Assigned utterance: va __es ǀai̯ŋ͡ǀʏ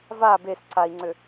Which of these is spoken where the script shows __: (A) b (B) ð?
A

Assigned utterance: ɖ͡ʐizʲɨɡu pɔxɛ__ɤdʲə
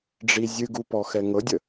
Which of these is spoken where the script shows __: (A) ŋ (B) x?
A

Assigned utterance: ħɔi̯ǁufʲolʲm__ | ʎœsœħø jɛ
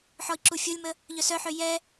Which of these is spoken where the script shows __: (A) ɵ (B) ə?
B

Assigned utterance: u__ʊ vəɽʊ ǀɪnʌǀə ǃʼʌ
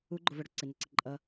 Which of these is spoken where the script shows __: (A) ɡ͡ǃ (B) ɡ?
A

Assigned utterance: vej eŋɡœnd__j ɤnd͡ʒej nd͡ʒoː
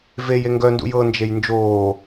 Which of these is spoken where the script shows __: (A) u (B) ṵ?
B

